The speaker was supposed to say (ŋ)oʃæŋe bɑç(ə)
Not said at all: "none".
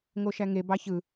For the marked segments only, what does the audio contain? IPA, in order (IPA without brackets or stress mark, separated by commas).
ŋ, ɯ